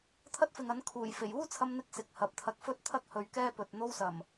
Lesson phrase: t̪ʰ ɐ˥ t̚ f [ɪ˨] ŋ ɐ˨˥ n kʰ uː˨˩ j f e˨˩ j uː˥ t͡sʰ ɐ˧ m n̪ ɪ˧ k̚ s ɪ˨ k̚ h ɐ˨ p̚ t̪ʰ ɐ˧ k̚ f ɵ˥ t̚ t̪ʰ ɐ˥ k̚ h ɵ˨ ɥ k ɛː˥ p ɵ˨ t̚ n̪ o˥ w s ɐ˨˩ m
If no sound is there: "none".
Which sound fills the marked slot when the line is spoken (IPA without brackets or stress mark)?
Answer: ɪ˨